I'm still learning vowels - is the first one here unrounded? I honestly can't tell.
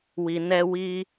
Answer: yes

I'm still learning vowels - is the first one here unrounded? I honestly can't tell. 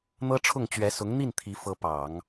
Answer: yes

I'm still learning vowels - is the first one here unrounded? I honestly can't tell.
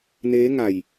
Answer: yes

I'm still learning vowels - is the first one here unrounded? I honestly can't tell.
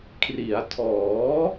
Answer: yes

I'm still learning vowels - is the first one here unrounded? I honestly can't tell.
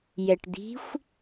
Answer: yes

